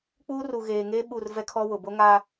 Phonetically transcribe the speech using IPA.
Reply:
k͡p uː˦ r u˨ ɣ eː˨ ŋ eː˦ ɓ u˦˨ r v ɛ˦ kʰ ɔ˦ w ʊ˨ b o˦ ŋ a˦

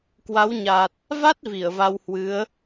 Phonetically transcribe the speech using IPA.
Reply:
k w a˨˦ w ɲ a˨˩ t̚ | v a˦˥ t̚ v i˧˩ ə̯ v a˧ w h w ɨ˨˦ ə̯

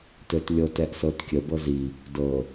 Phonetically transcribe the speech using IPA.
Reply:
t ɘ t lʲ ɤ t ɛ ʔ s ɤ t kʲ ə b ɤ z i | d ɤ

